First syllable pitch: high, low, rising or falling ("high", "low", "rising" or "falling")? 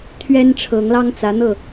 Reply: high